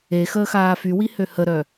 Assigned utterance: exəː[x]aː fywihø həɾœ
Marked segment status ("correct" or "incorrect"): correct